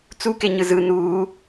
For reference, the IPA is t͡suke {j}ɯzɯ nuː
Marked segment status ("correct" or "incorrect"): incorrect